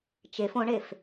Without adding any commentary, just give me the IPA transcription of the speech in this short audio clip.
t͡ʃef õɳef

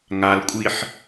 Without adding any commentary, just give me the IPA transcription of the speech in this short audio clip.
ŋalkʷʼiħ

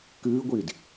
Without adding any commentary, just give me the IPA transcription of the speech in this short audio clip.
kɨːɡʷiːd

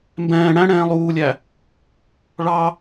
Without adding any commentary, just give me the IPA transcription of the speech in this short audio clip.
mbɛ̃ː ɽæ̃ɽɛ̃ː lˠuːlʲæ | ɭɑ

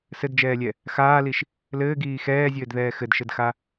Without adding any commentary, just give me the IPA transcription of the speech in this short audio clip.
sɘdd͡ʒɛːlʲɛ | xaːliʃ | lɘːɡiː xɛːzʲɘːdðɛː xɘdʃɘdxa

